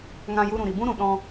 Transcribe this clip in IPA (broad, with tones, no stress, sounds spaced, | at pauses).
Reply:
ŋ ã˧ j u˧ ɾ ũ˨ ɾ i˨ b ũ˦ ɾ ũ˨ ɗ ɔ̃˦